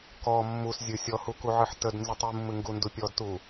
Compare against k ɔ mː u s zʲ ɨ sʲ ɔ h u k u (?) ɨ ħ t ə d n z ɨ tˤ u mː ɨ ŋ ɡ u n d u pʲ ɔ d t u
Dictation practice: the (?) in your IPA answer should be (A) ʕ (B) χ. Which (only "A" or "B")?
A